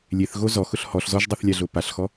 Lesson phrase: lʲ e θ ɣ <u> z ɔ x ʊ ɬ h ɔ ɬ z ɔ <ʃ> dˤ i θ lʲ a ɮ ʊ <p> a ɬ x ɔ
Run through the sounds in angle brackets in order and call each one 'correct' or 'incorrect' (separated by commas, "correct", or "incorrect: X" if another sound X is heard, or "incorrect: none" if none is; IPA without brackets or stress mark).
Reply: incorrect: o, incorrect: ʒ, correct